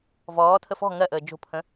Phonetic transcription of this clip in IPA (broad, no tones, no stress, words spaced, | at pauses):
vɔːtʰə fɔ̤ ŋɜʔəː d͡ʒo̤pʰə̃